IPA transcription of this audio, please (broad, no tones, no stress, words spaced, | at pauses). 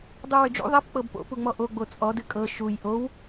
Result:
dˤuwʏd͡ʒṵ ðˤɛp k͡pɤbpo̰ puŋ͡mɔʔo ɡ͡bot͡sʼɔ dɨkʼɤ ʃuj ʔow